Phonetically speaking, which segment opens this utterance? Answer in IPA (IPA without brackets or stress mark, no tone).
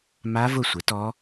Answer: m